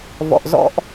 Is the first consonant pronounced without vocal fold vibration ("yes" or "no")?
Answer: no